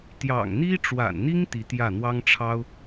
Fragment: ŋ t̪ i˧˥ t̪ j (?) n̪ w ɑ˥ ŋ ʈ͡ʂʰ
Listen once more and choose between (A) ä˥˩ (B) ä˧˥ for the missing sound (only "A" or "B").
A